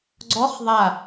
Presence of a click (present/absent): present